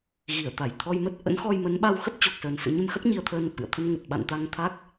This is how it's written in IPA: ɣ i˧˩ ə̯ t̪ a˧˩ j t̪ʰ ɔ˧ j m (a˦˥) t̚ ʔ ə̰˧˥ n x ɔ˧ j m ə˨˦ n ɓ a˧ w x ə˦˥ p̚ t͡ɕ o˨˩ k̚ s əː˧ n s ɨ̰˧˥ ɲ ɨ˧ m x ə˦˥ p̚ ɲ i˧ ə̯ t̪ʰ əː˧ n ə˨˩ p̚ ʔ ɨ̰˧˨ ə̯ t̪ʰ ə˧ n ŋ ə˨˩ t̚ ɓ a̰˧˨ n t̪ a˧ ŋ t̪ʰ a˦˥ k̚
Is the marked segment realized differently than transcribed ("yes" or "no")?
yes